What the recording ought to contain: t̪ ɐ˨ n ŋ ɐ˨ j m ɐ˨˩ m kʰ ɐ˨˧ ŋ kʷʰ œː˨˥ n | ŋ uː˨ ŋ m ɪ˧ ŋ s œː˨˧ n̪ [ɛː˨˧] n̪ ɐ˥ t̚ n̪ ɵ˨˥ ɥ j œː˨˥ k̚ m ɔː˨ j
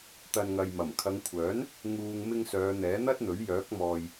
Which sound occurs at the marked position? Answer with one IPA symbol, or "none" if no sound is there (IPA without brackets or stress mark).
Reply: ɛː˨˥